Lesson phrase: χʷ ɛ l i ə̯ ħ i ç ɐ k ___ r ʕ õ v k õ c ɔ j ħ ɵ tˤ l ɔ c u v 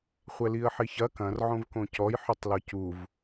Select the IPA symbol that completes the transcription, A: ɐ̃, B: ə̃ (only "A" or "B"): A